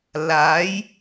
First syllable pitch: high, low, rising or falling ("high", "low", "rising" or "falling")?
rising